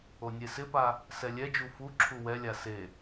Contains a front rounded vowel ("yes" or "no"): no